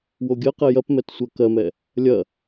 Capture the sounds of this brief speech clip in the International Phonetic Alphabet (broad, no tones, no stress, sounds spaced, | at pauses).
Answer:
w o ɡʲ ɜ q ɛ j ɐ p m ɛ t sʷ ɜ k ɜ m ɛ | lʲ ɐ